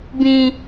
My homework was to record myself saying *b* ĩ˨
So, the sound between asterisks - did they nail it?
yes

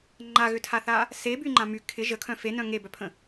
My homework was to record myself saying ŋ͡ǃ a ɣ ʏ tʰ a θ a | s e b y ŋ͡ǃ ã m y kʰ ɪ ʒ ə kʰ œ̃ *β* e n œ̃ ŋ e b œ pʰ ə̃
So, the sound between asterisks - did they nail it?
no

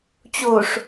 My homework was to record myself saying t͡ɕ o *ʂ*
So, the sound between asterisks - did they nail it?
yes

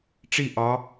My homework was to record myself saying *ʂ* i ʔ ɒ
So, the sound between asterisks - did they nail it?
no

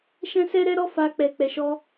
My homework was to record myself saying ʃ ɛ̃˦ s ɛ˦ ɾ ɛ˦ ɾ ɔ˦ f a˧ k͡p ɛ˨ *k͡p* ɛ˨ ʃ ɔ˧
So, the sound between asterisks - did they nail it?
yes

